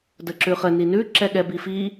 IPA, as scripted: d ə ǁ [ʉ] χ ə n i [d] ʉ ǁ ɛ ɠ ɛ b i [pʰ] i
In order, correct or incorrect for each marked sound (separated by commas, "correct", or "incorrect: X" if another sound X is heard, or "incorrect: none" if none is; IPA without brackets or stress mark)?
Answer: correct, incorrect: n, incorrect: f